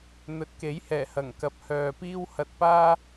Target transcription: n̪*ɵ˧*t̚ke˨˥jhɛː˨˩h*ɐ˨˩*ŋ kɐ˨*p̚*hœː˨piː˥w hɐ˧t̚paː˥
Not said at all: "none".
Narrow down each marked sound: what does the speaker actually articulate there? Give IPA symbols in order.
ɵ˨, ɐ˨˩, p̚

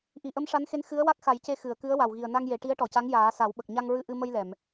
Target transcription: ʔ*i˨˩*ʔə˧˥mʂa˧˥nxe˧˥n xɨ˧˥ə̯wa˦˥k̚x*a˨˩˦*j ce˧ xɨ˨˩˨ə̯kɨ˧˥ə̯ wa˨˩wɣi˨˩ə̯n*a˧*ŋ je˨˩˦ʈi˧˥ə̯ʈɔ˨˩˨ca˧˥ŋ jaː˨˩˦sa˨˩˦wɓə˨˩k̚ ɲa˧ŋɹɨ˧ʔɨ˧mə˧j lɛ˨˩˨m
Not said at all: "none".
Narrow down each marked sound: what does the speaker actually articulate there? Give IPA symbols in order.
i˨˩, a˨˩˦, a˧

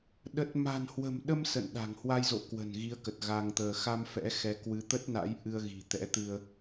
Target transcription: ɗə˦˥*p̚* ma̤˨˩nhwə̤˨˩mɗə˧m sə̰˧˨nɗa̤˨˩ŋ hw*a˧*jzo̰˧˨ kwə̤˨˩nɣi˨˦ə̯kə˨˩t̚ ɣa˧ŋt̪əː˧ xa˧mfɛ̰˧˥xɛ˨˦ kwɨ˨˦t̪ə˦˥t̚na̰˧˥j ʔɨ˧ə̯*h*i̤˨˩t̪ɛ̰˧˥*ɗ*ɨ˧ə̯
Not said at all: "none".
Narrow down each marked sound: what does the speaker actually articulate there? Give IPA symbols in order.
t̚, a˧, ɣ, t̪

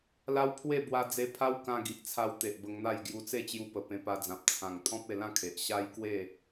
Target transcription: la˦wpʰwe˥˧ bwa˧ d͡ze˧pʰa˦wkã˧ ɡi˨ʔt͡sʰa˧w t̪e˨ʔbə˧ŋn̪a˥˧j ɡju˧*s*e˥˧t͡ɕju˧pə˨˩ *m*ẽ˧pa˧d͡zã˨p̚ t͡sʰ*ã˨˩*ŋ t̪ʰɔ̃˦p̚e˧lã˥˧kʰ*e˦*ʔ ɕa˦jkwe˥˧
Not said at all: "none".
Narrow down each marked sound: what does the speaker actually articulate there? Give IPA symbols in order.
t͡s, p, ã˨˩, e˨

